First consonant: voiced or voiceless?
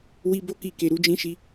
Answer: voiced